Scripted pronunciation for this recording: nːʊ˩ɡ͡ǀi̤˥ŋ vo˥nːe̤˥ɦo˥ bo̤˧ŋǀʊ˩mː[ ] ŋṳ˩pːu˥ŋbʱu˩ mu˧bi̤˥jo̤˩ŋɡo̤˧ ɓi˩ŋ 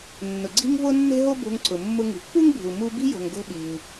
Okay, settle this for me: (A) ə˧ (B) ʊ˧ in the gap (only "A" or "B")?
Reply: B